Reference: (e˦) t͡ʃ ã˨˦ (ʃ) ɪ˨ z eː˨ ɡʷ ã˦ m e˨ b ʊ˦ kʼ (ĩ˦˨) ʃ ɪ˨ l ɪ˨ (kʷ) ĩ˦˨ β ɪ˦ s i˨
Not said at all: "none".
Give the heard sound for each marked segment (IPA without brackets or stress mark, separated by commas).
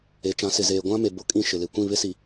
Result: e˨˦, s, ĩ˦˨, kʷ